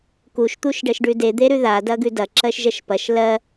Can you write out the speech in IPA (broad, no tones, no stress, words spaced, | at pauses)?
kuʃ t̪uʃɖɜʃɖʉde d̪eɾʉða dɐɡʉdɐ ǁɜʃʒɜʃpɐʃ lɜ